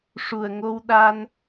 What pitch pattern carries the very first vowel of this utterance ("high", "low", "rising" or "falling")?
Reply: low